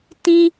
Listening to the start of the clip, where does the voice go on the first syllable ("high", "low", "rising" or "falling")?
high